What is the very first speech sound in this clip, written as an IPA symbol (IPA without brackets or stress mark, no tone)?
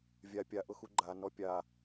vʲ